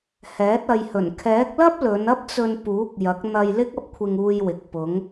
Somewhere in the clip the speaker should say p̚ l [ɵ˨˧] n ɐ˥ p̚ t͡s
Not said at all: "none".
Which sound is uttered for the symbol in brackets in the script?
ɵ˨˧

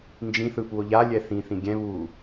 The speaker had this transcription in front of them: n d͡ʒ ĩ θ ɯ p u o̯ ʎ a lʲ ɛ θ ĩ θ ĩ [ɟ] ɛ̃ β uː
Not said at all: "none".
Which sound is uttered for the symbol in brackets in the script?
ɡʲ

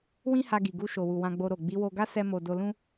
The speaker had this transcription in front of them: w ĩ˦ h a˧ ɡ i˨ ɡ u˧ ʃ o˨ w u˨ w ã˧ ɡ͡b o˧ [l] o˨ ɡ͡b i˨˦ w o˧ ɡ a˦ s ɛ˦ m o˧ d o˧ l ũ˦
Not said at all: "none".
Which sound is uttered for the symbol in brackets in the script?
ɾ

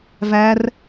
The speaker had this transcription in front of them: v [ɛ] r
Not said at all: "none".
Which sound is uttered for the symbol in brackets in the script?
æ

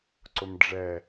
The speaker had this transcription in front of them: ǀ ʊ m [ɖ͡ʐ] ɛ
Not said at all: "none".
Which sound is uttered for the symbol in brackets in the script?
ɖ͡ʐ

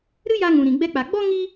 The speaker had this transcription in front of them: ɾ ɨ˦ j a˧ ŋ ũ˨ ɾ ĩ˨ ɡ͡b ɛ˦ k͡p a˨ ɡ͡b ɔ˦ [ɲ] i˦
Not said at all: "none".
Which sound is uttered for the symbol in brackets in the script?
ŋ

